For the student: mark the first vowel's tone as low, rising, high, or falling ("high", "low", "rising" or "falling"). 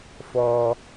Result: high